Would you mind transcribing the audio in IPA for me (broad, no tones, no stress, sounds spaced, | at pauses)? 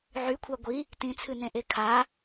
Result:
ʕ y kʷʰ a ɡʷ i | t ĩ t͡sʰ ɨ n ẽ ʔ e kʰ a